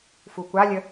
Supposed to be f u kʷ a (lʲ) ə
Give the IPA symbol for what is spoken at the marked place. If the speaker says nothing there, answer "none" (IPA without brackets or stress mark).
lʲ